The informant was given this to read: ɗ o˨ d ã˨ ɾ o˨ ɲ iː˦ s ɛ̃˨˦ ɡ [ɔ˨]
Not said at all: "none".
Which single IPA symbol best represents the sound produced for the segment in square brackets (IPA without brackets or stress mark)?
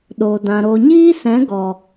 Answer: ɔ˨